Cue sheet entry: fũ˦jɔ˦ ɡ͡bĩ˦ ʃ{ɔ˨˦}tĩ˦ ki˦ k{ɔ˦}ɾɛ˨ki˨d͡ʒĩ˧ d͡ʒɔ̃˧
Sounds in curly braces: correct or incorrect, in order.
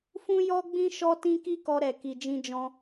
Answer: incorrect, incorrect

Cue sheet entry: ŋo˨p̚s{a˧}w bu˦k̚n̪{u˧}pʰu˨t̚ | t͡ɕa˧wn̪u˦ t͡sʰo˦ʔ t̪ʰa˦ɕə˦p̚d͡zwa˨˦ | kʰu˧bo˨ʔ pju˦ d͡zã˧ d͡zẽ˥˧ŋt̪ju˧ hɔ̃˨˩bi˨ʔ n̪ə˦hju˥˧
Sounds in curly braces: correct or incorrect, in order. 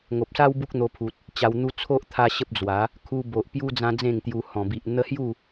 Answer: incorrect, incorrect

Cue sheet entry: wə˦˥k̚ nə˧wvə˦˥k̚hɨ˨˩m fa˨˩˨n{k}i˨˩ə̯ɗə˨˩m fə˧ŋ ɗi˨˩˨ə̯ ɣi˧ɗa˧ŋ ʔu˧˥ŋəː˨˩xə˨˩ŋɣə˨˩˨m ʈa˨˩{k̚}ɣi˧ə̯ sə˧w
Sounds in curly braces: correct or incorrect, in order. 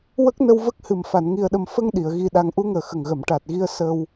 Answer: incorrect, incorrect

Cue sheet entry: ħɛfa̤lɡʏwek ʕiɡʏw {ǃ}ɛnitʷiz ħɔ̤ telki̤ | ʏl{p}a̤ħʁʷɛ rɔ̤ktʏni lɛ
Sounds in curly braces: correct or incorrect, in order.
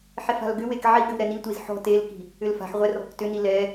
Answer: incorrect, incorrect

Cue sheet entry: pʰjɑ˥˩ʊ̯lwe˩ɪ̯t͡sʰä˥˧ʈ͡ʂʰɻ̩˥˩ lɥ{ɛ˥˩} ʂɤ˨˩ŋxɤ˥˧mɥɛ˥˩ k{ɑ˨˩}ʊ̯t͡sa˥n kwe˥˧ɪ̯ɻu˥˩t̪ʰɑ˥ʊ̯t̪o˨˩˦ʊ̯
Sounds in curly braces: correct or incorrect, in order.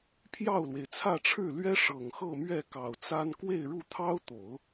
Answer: incorrect, correct

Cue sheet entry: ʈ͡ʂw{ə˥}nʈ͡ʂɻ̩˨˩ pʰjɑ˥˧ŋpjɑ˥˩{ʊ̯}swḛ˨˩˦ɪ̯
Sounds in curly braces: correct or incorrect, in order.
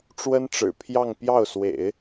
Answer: correct, correct

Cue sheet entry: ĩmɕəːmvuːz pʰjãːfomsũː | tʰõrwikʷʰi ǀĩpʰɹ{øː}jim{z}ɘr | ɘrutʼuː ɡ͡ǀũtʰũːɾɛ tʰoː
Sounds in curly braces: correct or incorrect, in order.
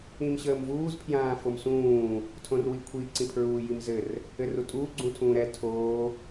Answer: incorrect, correct

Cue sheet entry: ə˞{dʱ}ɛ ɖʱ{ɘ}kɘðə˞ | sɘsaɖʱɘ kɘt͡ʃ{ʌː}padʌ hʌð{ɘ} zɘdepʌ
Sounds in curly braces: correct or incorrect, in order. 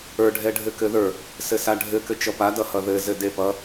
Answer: incorrect, correct, incorrect, correct

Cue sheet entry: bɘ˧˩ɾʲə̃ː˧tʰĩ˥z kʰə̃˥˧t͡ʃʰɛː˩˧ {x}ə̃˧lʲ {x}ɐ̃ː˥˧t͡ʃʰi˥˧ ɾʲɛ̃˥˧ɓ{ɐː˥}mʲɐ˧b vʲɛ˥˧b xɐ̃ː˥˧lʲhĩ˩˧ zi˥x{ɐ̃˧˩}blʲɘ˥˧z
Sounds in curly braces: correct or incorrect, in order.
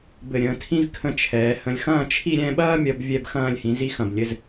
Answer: incorrect, correct, correct, correct

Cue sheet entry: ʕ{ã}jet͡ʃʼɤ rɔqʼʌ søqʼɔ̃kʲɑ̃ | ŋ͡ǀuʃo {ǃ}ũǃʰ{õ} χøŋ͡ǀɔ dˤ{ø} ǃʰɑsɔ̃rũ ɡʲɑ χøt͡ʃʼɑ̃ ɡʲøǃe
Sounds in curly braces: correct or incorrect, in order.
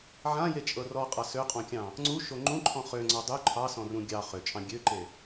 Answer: correct, incorrect, incorrect, correct

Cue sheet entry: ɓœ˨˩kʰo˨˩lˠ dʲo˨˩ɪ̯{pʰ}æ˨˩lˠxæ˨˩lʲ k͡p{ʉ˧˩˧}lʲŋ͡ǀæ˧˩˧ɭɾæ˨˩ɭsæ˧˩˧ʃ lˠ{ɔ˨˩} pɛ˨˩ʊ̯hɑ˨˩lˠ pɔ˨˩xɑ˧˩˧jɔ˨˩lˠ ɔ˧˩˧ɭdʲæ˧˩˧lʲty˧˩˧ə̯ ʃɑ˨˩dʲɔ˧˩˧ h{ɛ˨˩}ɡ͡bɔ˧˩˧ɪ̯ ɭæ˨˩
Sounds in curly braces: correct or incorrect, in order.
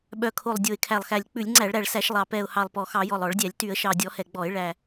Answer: incorrect, correct, incorrect, correct

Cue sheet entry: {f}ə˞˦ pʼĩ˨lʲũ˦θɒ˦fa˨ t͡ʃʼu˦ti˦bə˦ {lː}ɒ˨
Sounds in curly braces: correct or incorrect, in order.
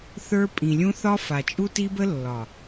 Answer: incorrect, correct

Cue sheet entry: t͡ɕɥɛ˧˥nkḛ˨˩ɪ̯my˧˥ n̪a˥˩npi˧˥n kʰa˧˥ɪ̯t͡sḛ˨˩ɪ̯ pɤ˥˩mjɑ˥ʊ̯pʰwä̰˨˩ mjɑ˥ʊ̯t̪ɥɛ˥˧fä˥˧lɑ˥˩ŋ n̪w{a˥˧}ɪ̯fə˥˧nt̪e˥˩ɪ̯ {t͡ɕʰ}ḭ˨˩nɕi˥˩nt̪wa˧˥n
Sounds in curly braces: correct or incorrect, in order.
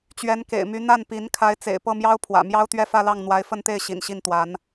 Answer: incorrect, incorrect

